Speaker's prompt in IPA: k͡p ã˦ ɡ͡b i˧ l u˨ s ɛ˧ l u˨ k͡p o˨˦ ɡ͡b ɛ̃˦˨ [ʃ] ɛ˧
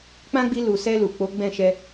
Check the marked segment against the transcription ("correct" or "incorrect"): correct